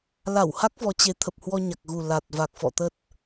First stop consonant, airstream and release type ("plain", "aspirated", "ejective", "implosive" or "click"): plain